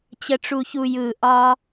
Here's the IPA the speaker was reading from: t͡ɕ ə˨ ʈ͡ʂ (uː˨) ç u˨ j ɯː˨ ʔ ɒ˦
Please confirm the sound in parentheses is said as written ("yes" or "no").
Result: no